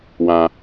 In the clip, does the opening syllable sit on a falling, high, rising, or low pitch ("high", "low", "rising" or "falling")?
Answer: high